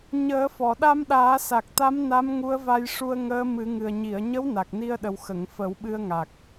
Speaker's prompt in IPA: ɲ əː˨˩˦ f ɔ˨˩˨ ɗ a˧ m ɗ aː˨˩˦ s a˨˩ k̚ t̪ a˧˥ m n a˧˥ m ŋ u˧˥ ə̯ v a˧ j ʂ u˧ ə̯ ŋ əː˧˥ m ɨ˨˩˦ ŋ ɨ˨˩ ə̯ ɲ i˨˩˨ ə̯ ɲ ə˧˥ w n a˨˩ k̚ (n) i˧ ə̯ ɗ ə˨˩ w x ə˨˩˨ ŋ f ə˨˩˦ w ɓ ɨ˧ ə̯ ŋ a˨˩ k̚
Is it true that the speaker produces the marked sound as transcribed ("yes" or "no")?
yes